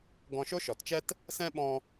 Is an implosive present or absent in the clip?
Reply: present